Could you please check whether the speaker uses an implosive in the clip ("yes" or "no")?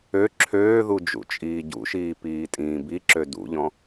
no